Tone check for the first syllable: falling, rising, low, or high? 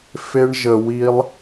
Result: high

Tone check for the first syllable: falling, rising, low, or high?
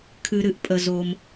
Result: low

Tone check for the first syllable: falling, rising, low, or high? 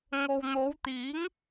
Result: low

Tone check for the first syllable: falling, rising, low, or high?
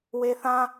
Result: high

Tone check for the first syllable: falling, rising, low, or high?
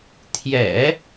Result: low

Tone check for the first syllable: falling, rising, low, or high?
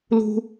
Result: high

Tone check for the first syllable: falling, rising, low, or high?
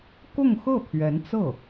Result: falling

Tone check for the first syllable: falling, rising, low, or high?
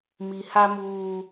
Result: low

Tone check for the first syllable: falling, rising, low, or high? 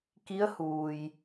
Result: rising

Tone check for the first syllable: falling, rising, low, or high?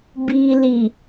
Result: low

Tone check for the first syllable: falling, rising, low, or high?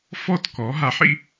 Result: falling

